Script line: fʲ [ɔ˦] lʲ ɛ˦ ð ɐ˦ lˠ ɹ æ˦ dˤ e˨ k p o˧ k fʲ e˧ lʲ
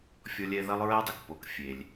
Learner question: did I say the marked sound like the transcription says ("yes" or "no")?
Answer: yes